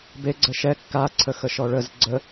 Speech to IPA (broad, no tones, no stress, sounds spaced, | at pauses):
b e ɡ͡ǀ ə ʃ ɛ kː a ǀʰ ə x ə ʃ ɔ ɭ ə z ɡ͡ǀ ə